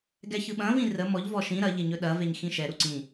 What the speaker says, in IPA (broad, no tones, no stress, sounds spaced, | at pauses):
ɡ ɛ ç ɯ ɓ ɐ̃ v ĩ r ə m ɔ ʎ v ɔ ʃ ĩ ɾ ɐ ʎ e ɲ ɵ ɗ ɐ v e ɲ x ĩ ʃ ɛ ɾ u ǀ ĩ